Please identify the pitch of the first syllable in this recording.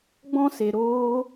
high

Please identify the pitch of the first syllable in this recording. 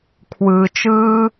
low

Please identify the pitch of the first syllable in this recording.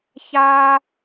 high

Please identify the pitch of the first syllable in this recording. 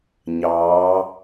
rising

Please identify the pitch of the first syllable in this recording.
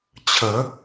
rising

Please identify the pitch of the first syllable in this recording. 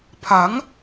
rising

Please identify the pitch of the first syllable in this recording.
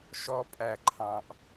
high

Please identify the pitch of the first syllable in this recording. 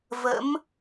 rising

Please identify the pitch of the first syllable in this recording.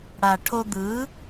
low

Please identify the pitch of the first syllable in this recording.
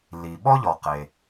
low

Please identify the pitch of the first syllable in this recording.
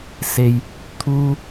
high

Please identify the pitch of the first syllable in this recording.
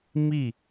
falling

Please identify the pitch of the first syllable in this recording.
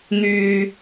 low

